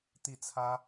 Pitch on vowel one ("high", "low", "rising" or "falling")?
falling